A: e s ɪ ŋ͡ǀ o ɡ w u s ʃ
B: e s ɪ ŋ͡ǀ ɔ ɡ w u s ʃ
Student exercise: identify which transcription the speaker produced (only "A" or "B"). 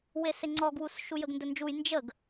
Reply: B